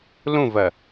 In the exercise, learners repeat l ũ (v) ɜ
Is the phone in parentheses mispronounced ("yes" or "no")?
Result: no